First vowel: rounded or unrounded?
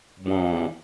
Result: rounded